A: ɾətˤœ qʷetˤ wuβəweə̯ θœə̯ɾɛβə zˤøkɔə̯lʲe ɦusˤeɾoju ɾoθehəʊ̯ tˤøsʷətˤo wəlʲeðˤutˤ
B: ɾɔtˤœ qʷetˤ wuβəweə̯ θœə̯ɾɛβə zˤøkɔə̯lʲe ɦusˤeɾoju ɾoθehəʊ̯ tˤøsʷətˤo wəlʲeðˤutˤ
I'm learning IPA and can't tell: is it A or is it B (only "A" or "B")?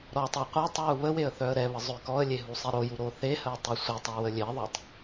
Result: B